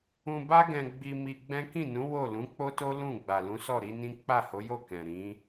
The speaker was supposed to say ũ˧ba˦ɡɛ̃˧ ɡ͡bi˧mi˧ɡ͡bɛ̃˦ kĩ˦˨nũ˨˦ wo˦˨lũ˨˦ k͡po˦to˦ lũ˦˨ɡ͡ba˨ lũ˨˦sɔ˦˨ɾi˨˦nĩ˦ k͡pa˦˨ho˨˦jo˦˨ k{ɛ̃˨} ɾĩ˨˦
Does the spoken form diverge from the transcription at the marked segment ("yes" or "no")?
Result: no